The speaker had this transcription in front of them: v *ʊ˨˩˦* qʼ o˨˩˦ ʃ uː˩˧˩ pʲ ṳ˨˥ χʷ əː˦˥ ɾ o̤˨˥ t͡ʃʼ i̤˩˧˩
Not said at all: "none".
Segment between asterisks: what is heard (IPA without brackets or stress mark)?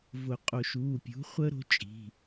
ʊ˨˩˦